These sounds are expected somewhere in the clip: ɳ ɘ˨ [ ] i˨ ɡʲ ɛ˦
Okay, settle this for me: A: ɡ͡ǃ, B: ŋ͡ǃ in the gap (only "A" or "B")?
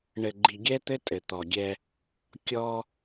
A